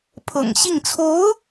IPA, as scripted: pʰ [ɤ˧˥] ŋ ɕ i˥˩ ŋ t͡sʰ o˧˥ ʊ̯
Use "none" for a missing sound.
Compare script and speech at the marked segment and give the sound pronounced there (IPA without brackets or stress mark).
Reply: ɤ̰˨˩